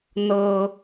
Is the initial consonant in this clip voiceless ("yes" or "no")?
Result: no